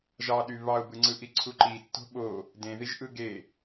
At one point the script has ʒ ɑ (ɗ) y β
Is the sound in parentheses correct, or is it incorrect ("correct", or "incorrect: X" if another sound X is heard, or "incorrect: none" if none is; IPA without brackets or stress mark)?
correct